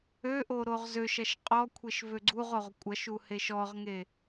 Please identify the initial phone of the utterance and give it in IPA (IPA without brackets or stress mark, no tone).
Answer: ø